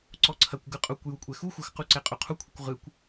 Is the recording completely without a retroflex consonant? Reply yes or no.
yes